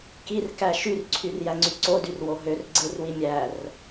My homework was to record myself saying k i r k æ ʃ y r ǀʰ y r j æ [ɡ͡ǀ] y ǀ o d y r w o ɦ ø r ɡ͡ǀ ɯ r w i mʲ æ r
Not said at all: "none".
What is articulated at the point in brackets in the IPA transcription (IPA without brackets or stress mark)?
ŋ͡ǀ